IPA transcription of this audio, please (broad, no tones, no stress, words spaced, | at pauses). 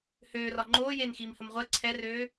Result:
høːrɒ ŋ͡ǃoːjeːnxiːmhəm ʁʷɜ ǀʰɛrøː